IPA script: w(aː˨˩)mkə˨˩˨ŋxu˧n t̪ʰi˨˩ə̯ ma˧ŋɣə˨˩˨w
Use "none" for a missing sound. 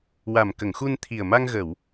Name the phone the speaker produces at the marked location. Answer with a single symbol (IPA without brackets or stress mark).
a˨˩